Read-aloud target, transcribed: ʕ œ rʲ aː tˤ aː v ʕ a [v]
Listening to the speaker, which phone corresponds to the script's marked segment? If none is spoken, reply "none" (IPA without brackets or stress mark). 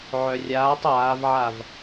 v